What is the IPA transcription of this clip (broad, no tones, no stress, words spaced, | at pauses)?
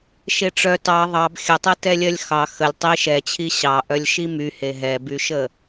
ʃeʈ͡ʂœ tɑ ðˤɑb xʲətˤetɛlʲɜlʲ xɑ xəlʲ tˤi ʃɛt͡ɕʰi ɕɑ ʔœlʲʃimyhe ɦɛbyʃə